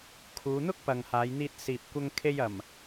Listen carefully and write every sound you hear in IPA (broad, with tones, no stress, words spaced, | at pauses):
kʰuː˨˧n̪ʊ˥k̚ pɐ˨ŋhaː˨˧jn̪iː˧t̚ siː˨p̚kʷɐ˧ŋkʰe˧j ɐ˨˩m